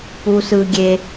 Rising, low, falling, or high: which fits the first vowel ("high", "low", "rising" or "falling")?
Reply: low